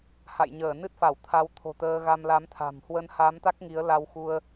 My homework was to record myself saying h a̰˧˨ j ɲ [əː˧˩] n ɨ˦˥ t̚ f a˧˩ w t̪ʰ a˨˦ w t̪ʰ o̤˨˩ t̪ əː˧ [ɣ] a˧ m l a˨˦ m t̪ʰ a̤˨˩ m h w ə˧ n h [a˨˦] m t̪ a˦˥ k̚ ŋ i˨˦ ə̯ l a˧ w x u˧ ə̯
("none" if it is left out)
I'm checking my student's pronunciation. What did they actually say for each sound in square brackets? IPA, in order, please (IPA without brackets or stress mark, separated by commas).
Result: əː˧˩, ɣ, a˨˦